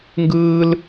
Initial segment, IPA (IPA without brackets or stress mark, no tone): ŋ